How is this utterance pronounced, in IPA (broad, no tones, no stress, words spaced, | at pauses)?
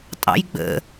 tʼɑ̰jɡ͡bə̰